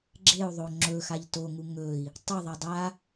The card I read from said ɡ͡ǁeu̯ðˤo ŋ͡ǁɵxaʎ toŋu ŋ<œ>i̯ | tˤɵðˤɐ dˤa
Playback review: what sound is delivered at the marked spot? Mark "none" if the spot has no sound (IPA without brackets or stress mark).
ɵ